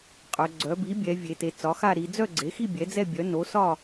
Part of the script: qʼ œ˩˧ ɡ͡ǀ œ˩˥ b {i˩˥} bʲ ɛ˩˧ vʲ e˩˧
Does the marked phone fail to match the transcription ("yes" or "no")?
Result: no